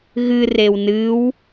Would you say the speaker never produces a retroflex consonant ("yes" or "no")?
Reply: yes